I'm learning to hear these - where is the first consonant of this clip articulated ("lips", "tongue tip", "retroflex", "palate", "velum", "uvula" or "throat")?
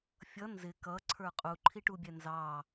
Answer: lips